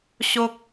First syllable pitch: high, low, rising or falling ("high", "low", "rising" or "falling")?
high